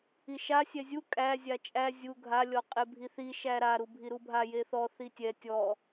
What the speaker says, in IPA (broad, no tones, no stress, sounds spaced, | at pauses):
i ʃ a sʲ ɛ zʲ u kʼ æ zʲ a t͡ʃʼ æ zʲ u ɡʱ a lʲ ɔ qʼ e bʱ i θ i ʃ æ ɾ a ɾ u bʱ i ɾ u bʱ a j e θ ɔ θ i tʲ ɛ tʲ ɔ